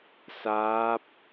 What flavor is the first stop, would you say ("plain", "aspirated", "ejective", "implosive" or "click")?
plain